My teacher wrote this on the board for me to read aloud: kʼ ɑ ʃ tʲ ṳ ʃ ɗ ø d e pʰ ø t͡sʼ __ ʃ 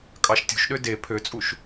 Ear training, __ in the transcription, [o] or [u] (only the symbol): u